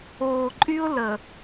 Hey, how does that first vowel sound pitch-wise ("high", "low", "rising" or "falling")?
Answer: low